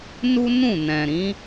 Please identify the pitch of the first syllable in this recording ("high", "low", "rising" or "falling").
high